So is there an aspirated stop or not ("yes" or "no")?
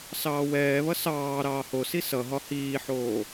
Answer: no